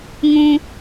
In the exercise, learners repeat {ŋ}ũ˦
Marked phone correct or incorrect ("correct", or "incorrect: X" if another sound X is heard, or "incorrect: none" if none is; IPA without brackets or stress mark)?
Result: correct